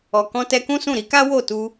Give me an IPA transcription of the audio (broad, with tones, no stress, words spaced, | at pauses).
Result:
ɔ˨kɔ̃˧ tɛ˧kũ˦sũ˦˨ ɾi˧ka˦ wo˦˨ tu˧